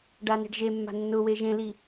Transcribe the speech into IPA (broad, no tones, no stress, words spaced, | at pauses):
ɖane̤ɖʒemːa̤ nːʊwe ʒẽli